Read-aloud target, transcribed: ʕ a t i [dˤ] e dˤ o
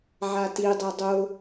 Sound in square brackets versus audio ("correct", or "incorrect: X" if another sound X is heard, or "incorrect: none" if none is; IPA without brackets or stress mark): correct